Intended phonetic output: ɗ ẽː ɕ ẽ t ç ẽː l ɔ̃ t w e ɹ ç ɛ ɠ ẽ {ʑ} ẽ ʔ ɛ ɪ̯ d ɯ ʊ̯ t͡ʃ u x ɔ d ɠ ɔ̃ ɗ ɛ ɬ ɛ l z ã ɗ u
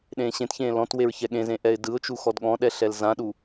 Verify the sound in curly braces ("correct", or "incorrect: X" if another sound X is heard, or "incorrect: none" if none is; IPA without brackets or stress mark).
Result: incorrect: z